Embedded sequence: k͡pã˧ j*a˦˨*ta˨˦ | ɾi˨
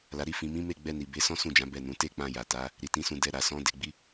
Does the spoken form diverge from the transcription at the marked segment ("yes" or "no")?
yes